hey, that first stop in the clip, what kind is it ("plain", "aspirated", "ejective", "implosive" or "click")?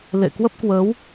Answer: plain